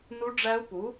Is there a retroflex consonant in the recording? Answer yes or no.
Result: yes